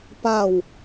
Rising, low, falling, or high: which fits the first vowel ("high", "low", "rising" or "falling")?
falling